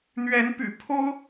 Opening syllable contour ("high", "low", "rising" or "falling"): rising